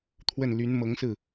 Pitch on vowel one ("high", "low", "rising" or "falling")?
falling